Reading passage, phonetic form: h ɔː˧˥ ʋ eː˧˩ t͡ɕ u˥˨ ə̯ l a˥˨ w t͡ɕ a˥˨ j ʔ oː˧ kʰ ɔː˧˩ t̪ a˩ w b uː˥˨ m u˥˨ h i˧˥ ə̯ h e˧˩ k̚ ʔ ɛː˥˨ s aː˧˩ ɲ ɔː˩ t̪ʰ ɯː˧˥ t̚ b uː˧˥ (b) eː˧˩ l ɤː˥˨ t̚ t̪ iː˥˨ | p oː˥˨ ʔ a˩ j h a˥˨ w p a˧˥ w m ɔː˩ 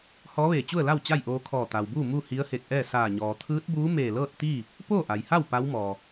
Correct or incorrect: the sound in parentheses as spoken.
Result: incorrect: m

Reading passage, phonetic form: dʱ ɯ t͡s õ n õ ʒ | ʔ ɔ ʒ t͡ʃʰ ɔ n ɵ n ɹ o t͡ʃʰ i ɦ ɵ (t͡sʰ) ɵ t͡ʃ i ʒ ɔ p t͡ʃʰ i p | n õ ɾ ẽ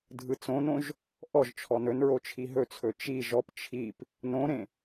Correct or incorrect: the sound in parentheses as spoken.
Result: correct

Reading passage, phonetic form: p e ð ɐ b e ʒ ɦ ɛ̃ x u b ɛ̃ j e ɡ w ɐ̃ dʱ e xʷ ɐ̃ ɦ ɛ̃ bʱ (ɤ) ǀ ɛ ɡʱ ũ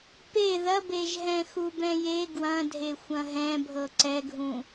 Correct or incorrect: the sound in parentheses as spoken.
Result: correct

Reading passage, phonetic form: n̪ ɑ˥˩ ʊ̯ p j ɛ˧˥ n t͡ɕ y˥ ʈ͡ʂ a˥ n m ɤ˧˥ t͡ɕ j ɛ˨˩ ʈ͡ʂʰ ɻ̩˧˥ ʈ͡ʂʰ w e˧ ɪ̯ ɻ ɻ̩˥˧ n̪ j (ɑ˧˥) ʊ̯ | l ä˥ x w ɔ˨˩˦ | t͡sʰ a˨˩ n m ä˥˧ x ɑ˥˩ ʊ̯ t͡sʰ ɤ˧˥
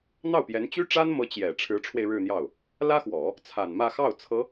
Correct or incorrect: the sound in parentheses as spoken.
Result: incorrect: ɑ˥˩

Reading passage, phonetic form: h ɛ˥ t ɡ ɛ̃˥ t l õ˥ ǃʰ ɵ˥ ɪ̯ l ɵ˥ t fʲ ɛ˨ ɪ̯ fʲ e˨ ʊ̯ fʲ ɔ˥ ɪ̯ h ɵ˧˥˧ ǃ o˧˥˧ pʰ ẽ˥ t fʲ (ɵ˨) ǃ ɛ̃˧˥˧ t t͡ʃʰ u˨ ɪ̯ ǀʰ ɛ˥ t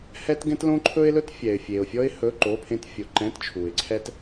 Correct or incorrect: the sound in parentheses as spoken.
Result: incorrect: o˨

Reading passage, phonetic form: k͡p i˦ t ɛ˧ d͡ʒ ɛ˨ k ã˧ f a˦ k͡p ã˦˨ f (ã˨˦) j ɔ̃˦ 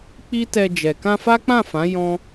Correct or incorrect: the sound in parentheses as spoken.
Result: correct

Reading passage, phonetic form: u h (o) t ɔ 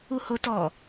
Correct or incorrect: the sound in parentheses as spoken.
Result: correct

